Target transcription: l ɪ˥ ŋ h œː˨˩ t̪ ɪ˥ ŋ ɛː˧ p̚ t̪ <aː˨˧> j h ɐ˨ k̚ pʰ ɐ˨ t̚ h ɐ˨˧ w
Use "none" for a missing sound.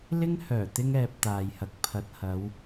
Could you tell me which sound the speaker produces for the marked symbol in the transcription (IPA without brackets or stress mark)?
aː˨